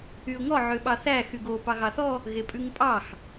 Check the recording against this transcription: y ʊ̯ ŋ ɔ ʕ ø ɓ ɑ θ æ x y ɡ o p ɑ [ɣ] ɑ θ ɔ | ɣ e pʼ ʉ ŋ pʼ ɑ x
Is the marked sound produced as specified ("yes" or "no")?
yes